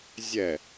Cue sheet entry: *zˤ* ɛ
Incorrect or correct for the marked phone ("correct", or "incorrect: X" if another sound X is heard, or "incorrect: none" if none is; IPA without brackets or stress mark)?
incorrect: zʲ